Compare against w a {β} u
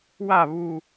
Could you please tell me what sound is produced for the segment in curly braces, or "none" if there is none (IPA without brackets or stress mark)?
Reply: β